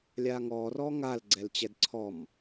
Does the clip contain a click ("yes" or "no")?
yes